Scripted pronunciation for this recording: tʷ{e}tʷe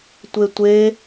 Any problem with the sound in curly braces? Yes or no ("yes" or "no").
no